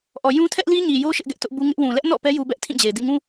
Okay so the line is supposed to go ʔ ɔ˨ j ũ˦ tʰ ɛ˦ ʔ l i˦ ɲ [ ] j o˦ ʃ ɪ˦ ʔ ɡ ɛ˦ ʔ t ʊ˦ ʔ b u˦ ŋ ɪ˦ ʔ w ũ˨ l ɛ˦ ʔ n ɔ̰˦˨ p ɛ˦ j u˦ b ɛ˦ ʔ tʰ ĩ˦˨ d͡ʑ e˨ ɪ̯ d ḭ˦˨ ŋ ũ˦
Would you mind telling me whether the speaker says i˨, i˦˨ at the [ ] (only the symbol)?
i˨